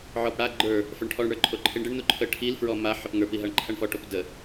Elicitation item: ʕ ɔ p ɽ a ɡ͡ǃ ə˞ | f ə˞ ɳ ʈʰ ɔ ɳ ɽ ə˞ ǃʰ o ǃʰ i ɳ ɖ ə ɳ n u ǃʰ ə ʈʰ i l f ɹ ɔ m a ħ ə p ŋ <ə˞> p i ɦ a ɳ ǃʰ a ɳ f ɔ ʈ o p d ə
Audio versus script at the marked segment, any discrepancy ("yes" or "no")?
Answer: no